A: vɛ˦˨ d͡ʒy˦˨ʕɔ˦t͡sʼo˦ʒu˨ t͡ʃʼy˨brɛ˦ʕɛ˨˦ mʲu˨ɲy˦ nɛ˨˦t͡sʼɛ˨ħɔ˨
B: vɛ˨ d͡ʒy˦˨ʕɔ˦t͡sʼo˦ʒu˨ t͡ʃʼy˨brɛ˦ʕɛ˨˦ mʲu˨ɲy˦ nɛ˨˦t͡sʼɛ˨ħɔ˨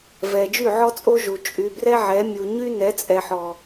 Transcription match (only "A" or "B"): B